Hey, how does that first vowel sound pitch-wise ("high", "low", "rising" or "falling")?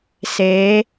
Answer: rising